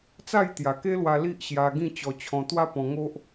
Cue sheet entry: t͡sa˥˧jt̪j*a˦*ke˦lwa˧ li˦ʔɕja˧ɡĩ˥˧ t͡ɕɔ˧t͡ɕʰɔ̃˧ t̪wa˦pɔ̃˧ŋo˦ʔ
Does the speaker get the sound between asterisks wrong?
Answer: yes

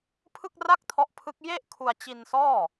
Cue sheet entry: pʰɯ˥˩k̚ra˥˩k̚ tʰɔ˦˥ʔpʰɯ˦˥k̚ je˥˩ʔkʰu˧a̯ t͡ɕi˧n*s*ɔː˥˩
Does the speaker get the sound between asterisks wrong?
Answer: no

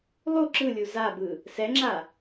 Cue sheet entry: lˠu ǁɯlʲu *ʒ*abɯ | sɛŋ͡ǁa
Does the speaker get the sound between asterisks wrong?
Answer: yes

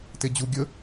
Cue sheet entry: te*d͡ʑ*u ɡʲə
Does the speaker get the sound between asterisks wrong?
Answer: no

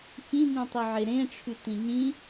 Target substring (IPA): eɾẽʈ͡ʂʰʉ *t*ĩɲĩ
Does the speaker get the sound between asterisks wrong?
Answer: no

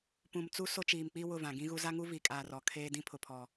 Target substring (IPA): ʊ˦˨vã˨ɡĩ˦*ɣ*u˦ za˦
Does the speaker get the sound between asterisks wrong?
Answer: no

